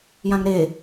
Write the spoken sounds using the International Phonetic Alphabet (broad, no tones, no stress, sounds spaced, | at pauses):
j ã ŋ ɾ e